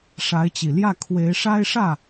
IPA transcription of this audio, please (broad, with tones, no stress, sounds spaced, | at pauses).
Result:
ʂ a˧˥ ɪ̯ t͡ɕ i˨˩ l j ä˥˩ kʰ w e˧˥ ɪ̯ ʂ a˥ ɪ̯ ʂ ä˥˩